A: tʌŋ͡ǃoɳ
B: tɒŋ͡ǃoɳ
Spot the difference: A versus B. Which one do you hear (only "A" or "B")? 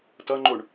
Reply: A